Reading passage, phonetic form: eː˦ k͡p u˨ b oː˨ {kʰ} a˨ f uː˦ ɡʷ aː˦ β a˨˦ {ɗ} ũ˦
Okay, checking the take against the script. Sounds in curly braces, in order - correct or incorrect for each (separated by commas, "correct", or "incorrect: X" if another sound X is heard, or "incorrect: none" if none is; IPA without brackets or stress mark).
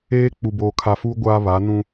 correct, incorrect: n